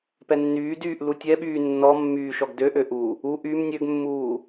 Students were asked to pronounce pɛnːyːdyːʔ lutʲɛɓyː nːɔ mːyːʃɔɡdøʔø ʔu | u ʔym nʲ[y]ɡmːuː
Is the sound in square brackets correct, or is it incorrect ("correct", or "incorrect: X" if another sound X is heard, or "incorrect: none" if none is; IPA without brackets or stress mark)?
incorrect: ø